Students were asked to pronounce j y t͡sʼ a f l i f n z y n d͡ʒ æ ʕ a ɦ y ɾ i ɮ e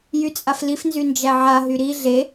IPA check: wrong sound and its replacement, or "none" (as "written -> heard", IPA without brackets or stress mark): none